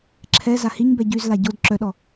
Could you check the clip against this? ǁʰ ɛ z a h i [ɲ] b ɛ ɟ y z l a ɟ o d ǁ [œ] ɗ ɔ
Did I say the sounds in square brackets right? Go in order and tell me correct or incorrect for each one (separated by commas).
correct, correct